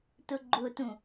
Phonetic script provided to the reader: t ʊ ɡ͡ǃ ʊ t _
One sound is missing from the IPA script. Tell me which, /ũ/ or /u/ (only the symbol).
ũ